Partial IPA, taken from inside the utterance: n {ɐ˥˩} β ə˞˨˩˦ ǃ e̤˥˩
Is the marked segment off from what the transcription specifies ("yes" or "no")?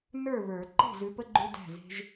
yes